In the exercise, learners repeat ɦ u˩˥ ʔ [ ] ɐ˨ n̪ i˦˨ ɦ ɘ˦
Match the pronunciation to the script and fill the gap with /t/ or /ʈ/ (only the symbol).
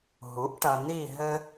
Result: ʈ